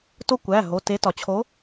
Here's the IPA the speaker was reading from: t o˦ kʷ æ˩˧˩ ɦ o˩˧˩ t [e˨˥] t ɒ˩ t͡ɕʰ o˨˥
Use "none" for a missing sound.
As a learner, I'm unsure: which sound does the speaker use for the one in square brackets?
e˨˥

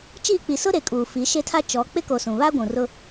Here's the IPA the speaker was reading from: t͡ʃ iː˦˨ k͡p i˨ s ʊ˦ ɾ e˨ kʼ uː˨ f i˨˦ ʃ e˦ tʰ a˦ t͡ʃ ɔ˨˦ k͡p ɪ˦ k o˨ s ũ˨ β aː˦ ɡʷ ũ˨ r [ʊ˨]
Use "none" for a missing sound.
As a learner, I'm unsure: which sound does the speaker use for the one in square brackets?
ʊ˦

